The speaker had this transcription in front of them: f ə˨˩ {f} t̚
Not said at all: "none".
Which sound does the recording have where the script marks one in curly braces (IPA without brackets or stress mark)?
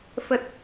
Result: none